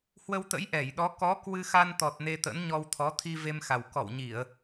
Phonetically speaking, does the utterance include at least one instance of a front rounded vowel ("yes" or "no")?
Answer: no